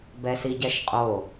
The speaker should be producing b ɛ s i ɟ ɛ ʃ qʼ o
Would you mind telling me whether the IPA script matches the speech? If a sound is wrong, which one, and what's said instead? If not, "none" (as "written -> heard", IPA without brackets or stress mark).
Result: none